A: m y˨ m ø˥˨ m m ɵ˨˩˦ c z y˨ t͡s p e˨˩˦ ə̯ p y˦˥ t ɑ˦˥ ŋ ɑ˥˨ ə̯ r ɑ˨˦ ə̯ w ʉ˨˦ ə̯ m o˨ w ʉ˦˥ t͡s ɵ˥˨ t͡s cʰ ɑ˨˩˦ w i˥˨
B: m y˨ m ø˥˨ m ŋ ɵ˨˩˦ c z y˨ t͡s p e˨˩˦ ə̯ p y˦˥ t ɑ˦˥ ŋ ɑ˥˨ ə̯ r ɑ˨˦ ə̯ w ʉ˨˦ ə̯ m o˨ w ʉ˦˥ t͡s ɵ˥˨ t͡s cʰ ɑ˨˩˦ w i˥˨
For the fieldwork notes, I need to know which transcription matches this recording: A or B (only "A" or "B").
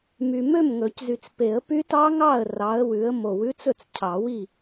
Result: B